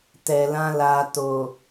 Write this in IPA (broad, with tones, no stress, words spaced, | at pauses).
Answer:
tɛ˨lã˧ la˨to˨